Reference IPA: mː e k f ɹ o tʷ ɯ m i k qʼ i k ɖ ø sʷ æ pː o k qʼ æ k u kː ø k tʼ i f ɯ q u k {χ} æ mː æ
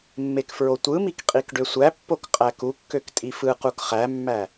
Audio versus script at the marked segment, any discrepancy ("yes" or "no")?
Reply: no